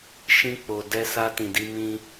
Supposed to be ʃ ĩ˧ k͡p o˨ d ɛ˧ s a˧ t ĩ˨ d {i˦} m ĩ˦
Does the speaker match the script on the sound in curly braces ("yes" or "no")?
no